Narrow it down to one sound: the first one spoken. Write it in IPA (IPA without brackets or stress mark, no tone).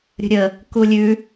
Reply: ɾʲ